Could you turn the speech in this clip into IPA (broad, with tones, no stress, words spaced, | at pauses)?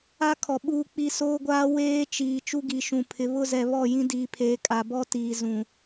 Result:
a˦kʰɔ˨ ɓuː˦k͡pi˦ soː˦ɡʷaː˦ weː˦ t͡ʃiː˨ t͡ʃu˦ɡi˨ʃũ˨ pʰɪ˨βʊ˦˨zɛ˨ βɔ˦˨ jĩ˦diː˨pʰeː˨ kʼa˨bɔ˦ tiː˨zũ˨